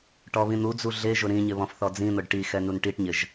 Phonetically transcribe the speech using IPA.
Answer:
ʈɔβĩn̪ud͡zu ɮeʒʊ ɾĩɲɪ βɔ̃fθɔd͡zĩn̪ʊɖ ʈi xɛnunʈiʈɲɪʒ

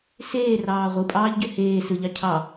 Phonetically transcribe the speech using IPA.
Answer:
seːrɑː ʁʷɯpʼɑːʎɟø heː sɯʎɑ cʰɑ

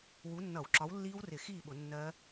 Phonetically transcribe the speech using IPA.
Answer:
wu˨˥nːʌ˧˩˧w ǁɒ˨˥wlːiː˦˥wrɪ˧˩˧ xiː˥˨ɓʊ˧˩˧ nːɜ˦˥

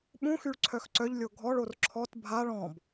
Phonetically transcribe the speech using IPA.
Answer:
ɓũxyɭ ǀʰœxǀœʎlʲo ɡʱɔɭor ǁʰɔt bʱaɭ ɔ̃b

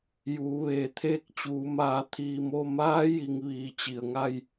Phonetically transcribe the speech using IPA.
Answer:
juː˩˧ʋeː˩˧ t̪ʰeː˥˨k̚t͡ɕuː˩˧maː˧˩ t̪ʰiː˧˩mo˥˨ maː˧˥ ji˧ŋʋiː˧˩ t͡ɕi˩ə̯ŋa˥˨j

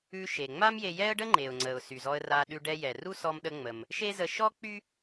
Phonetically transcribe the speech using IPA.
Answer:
ʉ˧ ʃe˩ŋ͡ma˥mje˧ jɛ˥ə̯ɖə˥ ŋ͡ǃe˩ʊ̯ŋ͡ǀə˩ʊ̯ sy˩zɔ˧ə̯ra˧ ɗʉ˧ɖɛ˧ jɛ˩ru˥ sɔ˧mɗə˧ ŋ͡mə˩m | ʃe˥zə˧ ʃɔ˥ k͡py˥

